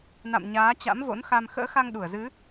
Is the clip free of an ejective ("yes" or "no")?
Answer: yes